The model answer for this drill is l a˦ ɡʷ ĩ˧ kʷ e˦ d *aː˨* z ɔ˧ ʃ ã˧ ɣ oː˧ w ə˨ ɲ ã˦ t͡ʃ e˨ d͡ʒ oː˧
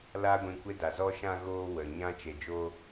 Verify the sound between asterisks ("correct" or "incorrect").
incorrect